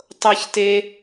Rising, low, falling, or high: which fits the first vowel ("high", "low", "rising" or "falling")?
high